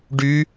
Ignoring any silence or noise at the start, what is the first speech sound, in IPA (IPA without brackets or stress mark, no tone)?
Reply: ɖ